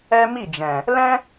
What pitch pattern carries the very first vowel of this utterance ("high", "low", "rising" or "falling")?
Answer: high